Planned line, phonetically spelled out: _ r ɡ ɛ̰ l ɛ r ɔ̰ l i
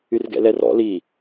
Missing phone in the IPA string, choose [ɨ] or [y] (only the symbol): y